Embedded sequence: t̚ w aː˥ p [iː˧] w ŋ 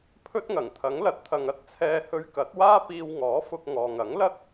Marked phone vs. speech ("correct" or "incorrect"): correct